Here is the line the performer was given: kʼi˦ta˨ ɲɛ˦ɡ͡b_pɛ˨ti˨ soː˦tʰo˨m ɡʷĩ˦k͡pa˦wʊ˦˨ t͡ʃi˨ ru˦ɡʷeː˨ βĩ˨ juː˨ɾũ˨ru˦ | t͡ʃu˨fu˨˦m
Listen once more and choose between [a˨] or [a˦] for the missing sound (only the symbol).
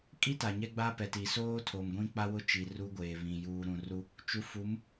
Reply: a˦